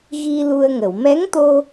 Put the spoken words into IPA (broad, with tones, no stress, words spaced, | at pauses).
ɣi˧ lu˧ə̯ŋə˨˩˨w mɛ˧˥ŋt̪o˧